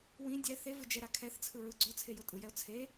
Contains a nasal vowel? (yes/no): yes